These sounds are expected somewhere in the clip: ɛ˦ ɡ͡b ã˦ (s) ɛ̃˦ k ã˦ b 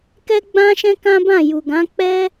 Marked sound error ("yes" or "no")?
yes